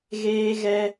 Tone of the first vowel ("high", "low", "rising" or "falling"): high